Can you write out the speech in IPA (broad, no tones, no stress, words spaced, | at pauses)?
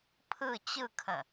pʰɯ t͡ɕɯkʰə̃